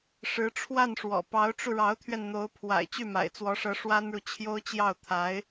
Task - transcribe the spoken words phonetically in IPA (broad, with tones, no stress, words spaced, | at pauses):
ʂɻ̩˧˥ʈ͡ʂʰwa˥˩nʂwɔ̰˨˩ pɑ˧˥ʊ̯ʈ͡ʂu˧ɻɑ˧˥ʊ̯t̪ʰɥɛ˧n n̪o˧˥ʊ̯ pʰwa̰˨˩ɪ̯ t͡ɕy˥˩ma̰˨˩ɪ̯t͡swɔ˧˥ʂɤ˧˥ ʂwa˥nɻu˨t͡ɕʰjo˥ʊ̯t͡ɕjɑ˥˩ʊ̯ t̪ʰa˧˥ɪ̯